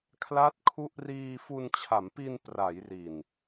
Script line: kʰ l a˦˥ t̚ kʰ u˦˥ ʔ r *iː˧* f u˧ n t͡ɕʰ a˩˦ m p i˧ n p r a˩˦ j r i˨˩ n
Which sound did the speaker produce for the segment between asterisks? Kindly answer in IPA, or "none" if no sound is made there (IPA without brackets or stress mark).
iː˧